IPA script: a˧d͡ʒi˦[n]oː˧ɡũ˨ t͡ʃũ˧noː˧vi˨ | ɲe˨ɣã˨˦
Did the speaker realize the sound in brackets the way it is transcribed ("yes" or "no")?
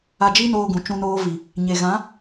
yes